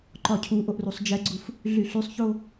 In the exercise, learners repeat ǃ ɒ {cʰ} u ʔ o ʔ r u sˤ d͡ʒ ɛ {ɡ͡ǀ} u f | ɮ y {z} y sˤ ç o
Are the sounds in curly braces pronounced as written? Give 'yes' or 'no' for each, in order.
yes, yes, no

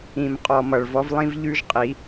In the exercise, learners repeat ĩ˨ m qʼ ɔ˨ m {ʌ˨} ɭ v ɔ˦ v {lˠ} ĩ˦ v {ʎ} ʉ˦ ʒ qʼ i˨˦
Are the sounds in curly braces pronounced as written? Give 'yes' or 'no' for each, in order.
yes, yes, yes

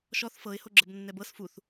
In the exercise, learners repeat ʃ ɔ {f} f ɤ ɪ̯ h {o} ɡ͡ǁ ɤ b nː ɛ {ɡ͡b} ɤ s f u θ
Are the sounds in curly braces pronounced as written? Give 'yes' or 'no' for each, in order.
no, yes, no

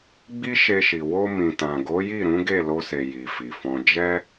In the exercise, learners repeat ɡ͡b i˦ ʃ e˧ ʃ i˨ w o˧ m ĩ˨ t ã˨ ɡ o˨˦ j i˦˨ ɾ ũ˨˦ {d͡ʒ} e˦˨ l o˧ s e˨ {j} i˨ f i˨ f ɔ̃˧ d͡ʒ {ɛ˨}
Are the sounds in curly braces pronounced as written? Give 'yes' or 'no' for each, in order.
no, yes, no

